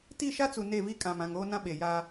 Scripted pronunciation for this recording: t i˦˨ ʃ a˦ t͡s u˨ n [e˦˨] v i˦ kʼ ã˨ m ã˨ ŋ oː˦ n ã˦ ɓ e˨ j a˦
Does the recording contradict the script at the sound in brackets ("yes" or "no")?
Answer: no